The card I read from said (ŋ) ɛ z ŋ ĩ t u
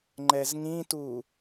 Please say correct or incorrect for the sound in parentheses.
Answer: incorrect